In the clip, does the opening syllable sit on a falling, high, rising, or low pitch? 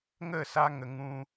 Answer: falling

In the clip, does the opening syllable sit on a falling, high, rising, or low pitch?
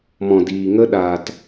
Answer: low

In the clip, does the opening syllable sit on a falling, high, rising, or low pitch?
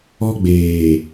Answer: high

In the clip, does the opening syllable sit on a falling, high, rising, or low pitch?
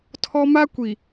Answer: high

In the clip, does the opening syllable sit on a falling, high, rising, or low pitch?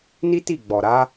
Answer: high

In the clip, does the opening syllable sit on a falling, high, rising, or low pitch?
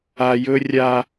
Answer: low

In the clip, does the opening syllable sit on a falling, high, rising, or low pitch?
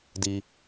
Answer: high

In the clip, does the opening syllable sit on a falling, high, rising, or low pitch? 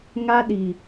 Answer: high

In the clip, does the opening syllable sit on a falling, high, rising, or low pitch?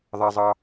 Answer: high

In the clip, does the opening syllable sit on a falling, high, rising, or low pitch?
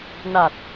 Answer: low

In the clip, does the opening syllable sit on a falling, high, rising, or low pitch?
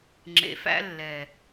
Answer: low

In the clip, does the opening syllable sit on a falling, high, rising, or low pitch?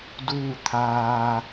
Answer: falling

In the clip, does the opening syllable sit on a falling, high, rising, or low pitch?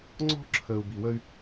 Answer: high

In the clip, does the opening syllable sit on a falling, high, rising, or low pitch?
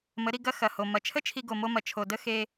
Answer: rising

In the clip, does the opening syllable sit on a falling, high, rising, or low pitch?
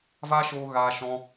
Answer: high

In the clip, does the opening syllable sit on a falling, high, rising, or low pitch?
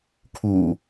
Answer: low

